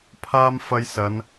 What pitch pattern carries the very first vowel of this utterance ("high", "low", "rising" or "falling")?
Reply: high